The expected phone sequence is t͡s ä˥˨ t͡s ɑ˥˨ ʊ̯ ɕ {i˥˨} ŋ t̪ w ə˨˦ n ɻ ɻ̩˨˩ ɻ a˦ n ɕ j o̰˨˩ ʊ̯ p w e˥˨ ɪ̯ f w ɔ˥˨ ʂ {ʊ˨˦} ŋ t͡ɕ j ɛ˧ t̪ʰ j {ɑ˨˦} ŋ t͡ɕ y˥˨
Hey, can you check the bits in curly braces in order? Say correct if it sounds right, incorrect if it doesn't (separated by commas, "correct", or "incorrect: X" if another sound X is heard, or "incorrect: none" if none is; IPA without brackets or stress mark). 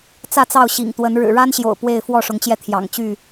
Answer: incorrect: ḭ˨˩, correct, incorrect: ɑ̰˨˩